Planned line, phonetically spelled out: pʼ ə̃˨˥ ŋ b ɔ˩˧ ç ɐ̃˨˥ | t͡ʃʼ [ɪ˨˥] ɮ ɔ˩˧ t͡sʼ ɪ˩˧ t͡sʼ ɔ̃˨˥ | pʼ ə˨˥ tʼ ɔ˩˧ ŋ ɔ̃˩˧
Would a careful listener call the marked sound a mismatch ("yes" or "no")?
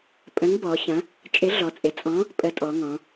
no